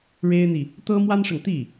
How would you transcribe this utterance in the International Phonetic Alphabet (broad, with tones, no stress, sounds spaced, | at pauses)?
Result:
ɻ e˥ ɪ̯ n̪ i˨ | t̪ ɤ˥ m w a˥ n ʂ ɤ˨ ŋ t̪ i˥˩